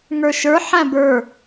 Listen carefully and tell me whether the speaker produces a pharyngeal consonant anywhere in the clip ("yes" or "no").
yes